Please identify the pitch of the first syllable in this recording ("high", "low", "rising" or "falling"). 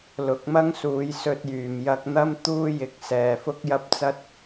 rising